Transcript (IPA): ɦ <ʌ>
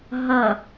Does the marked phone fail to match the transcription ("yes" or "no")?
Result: no